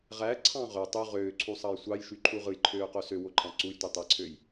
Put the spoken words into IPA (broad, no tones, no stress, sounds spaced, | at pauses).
ʁ æ ǀʰ ɑ̃ ʁ ø tˤ y ʁ øː ǀʰ u sˤ ɑ j sʷ ɑ j ʃ y ǃʰ u ʁ ɯ j ǃʰ øː q o s ø w o ǃʰ ɑ̃ ǀ u j tʷ i tˤ æ ǀʰ ø j